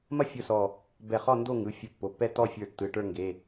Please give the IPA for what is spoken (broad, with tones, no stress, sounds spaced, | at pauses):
m ɐ˥˧ fʲ ʊ˥˧ s ɔ˧˩ | b ɛ˧˩ χ ɔ˥˧ n d o˥˧ ŋ ɯ˩˧˩ fʲ ʊ˧˩ pː o˩˧˩ pː ɛ˥˧ t ɔ˥˧ fʲ ə˞˧˩ tː ɯ˩˧˩ ʈ ə˞˥˧ ŋ ɡ e˩˧˩